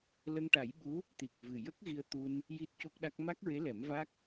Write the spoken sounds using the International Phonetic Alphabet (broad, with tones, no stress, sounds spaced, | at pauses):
l ə˧ ŋ ʈ a˨˩˦ j ɓ u˧˥ | t̪ i˨˩ k̚ v ɨ˨˩ j ə˦˥ k̚ ɣ i˧ ə̯ t̪ u˧ n | j i˦˥ t̚ c o˦˥ k̚ ɗ a˦˥ k̚ m a˦˥ k̚ ɹ e˧˥ l ɛ˨˩˦ m v a˦˥ k̚